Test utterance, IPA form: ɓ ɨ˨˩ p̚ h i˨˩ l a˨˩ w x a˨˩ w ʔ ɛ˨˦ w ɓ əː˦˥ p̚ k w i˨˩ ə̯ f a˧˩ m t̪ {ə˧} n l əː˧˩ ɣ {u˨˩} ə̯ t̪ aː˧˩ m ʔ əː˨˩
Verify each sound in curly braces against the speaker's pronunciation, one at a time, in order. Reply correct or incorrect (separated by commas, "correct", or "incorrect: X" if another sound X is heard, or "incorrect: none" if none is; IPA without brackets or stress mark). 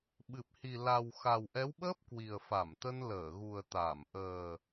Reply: correct, correct